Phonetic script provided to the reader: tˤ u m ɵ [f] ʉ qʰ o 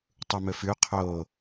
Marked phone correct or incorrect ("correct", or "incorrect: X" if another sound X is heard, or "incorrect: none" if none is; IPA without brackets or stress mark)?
correct